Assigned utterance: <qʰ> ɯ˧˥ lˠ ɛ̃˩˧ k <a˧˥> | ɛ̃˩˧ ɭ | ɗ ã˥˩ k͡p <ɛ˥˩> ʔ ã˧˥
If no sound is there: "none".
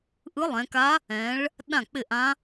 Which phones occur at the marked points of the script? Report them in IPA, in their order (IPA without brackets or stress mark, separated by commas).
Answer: ʔ, a˧˥, ɪ˥˩